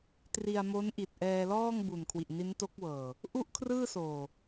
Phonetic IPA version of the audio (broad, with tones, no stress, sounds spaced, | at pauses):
t r i˧ a̯ m o˦˥ n ʔ i˨˩ t̚ ʔ ɛː˧ l ɔː˥˩ ŋ b u˨˩ n kʰ w i˨˩ ʔ n i˦˥ n t o˦˥ k̚ w ɤː˨˩ | ʔ u˥˩ ʔ kʰ r ɯː˥˩ s oː˨˩